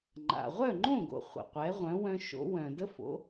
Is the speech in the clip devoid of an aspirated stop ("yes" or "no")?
yes